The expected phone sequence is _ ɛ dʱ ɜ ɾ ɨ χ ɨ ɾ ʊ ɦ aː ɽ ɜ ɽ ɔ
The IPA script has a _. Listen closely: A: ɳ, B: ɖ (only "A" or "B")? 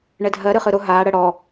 A